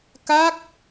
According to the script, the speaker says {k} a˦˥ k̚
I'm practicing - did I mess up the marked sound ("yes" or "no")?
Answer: no